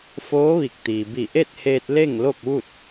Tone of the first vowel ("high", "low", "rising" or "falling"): rising